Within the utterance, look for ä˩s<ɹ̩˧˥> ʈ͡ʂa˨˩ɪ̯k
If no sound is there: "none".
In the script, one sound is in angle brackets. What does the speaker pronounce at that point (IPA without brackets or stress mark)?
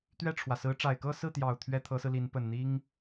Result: ɹ̩˧˥